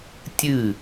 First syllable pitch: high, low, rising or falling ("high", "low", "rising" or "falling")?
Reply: falling